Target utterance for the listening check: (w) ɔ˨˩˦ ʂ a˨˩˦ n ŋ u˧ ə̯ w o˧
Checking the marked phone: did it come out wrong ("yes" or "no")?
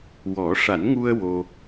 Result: no